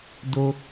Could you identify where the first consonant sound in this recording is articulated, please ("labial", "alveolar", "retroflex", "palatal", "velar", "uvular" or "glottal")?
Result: alveolar